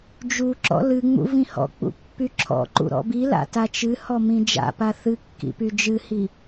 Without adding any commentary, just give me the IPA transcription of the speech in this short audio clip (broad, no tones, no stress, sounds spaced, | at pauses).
d͡ʒ u ǁ ɔ̰ l ɨ ŋ͡m ṵ v ĩ h ɔ̰ k͡p ṵ pː y ǁʰ ɔ̰ ǃ ṵ ɾ ɔ̰ b i l a̰ t a t͡ʃ ɨ h ɔ m ĩ d͡ʒ a̰ p a θ ɨ kː ḭ p y d͡ʒ ɨ h i